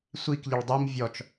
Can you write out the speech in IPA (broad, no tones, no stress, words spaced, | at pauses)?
sʷik ʎəɭdˤim vʲɔt͡ʃ